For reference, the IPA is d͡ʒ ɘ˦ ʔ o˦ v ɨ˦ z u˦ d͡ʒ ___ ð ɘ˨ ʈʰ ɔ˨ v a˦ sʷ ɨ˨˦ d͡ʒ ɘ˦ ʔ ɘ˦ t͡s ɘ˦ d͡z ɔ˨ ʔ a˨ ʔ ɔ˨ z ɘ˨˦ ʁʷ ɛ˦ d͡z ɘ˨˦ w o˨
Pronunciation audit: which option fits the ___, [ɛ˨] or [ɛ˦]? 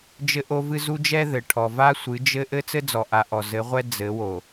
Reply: ɛ˦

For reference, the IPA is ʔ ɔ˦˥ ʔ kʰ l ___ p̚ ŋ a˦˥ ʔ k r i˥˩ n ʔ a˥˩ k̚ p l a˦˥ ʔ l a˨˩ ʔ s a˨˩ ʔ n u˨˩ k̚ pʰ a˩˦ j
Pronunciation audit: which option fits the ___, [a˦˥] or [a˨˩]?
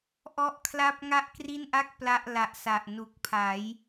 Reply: a˦˥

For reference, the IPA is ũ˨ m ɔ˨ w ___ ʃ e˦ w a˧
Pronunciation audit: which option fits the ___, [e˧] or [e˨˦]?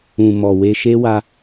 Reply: e˧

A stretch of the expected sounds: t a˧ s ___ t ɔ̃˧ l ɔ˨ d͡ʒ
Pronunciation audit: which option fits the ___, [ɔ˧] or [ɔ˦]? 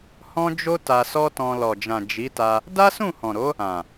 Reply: ɔ˦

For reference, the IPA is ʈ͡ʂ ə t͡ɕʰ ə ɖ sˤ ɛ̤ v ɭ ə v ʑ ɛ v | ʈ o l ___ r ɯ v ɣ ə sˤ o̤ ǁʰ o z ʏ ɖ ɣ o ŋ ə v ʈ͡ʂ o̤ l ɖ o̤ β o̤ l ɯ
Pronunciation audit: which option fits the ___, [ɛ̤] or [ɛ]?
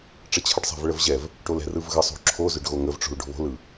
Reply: ɛ̤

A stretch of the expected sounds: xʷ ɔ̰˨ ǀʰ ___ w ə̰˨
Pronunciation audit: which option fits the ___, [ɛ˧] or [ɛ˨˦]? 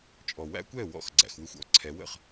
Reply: ɛ˨˦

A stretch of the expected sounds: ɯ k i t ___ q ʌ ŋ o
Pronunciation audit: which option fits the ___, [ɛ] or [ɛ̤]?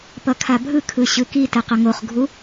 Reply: ɛ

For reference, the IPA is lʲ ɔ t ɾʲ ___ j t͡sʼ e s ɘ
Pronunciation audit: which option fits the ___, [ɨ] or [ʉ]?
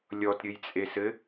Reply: ɨ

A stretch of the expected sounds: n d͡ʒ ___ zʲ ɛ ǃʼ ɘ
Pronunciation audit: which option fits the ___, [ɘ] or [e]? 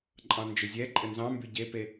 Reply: ɘ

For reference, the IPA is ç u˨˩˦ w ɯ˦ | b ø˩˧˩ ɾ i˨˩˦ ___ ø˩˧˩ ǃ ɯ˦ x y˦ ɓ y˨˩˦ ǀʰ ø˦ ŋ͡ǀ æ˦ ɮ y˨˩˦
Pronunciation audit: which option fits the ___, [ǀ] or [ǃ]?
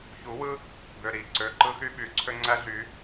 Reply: ǀ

